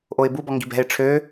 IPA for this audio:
ʔ o ɪ̯ b u b ɔ ŋ ɡ i̤ b ɛ̤ ɪ̯ ʈ͡ʂʰ ø

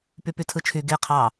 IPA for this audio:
p y p y tʰ ɯ t͡ʃʰ y ɡ e qʰ ɑ

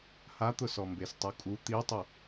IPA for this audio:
h a t̪ ʊ s ɔ m b e s tˤ u kʼ u t̪ i tˤ ʊ

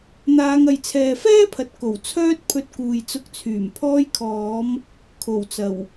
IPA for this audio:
n̪ aː˨˧ ŋ ɐ˨ j t͡sʰ ɛː˨ f ɛː˥ pʰ ɐ˨ t̚ k o˨˩ w t͡sʰ œː˥ t̚ pʰ ɵ˧ t̚ k uː˨ j t͡s ʊ˧ k̚ t͡sʰ yː˨˩ m pʰ ɔː˧ j kʰ ɔː˨˧ m | kʰ o˨˩ w t͡s ɐ˨˩ w

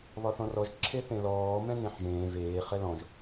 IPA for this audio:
β ɒ θ ɔ̃ r ɔ ʒ ǁʰ e θ ẽ l ɔː m ɛ̃ n ẽ ħ ʒ ẽː v eː χ ɛ l ɔ̃ ʒ

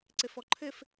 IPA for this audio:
ǀ ɘ f ɔ ǃʰ ɘ f

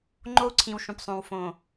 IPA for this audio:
ŋ͡ǃ o˦ u̯ ǀʰ ĩ˨ w ʃ ũ˨ p sˤ õ˨ w f õ˨

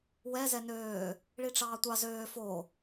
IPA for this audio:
w ɛ z ɛ n øː | ɭ i ʈ͡ʂ ɑː tʷ ɑ z øː f o

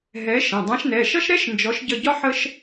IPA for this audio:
ɦ ɛ˨˥ ʃ ə̃˩˧˩ dˤ ã˨˥ ʃ n ɛ˩˧˩ ʃ ʌ˥ ʃ ɾ ɛ˥ ʃ n d͡ʒ ɔ˨˥ ʃ ɟ ə˦˨ ɟ ɒ˥ ħ ə˥ ʃ

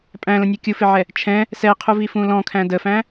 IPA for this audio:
pʼ æ̃ l ə̃ nʲ ɤ kʲ u f ɪ ʕ ɛ | t͡ʃʰ ɛ̃ | s ɛ qʰ u v i f ũ l ɔ̃ kʰ æ̃ d ə f æ̃

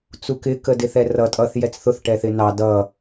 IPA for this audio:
t͡s u k ɪ k ə d ɪ θ ɛ r ʌ tʼ ʌ θ j ɛ t͡s θ ʊ θ ʈ ɛ θ ɪ n ɑ d ʌ

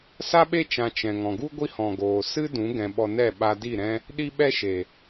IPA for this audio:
s a˦ ɓ e˦ t͡ʃ ã˧ t͡ʃ ɛ̃˨ ŋ ɔ̃˨ ɡ u˦ ɡʷ i˦ h ɔ̃˨ ɡ oː˨ s ɨ˦ d ũ˨˦ ɡ ɛ̃˧ ɓ ɔ˧ n ɛ˦˨ ɓ a˧ d i˦˨ ɾ ɛ̃˦ | ɗ i˦ ɓ ɛ˦ ʃ e˨

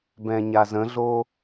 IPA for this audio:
b ɛ̃ ɲ a z ə̃ ɮ o

